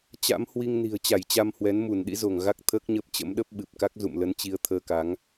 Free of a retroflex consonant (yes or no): yes